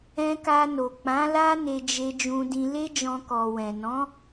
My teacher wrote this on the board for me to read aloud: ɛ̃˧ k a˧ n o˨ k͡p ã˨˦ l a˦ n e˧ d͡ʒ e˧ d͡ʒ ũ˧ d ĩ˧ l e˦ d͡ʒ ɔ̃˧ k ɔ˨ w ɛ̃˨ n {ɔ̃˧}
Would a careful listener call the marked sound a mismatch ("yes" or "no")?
yes